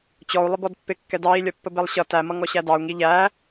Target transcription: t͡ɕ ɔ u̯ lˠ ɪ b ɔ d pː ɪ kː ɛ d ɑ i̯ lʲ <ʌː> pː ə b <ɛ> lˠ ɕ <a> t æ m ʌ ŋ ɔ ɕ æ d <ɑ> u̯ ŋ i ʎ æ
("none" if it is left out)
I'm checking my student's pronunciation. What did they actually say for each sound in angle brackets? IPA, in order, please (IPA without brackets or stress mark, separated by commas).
ʌ, ɛ, ʌ, ɑ